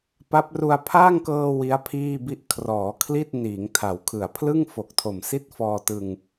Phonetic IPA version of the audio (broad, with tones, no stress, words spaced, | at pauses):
pa˦˥p̚ru˧a̯ pʰaː˥˩ŋkɤː˧ wi˦˥a̯pʰiː˥˩bi˥˩ʔ kʰrɔː˩˦kʰli˥˩t̚ niː˩˦ŋtʰa˩˦wkʰɯ˨˩a̯ pʰlɯ˥˩ŋ fo˨˩k̚tʰo˨˩msi˥˩t̚ fɔː˧tɯ˧ŋ